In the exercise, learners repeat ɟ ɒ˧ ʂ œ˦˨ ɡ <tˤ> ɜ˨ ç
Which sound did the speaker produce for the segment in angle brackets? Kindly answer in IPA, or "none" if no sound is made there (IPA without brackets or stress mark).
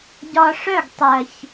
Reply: tˤ